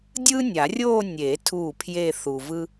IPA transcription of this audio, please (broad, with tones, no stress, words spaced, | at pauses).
dʲɯː˥nʲa˨˩˦rʲoː˥˧ nʲe˨˩˦ tʰuː˥˩pʰje˥˧ θu˨vɯ˥